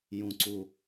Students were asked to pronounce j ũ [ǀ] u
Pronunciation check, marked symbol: correct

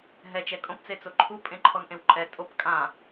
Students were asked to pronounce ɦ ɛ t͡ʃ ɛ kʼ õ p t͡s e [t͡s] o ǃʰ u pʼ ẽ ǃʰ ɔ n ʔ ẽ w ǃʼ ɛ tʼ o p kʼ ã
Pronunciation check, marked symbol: correct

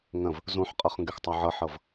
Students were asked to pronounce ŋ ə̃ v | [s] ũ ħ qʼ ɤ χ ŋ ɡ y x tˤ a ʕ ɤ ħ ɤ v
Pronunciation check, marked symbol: incorrect: z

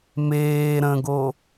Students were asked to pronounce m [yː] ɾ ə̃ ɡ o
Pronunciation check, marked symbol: incorrect: eː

